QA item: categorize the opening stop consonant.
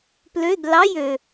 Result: plain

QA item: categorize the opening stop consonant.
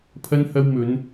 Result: aspirated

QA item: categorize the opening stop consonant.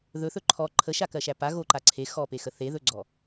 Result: click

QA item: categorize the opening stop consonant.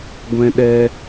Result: plain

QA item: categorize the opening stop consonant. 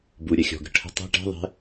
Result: plain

